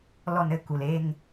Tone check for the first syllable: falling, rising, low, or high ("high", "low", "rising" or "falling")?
falling